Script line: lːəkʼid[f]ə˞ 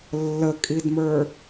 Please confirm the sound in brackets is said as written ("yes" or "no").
no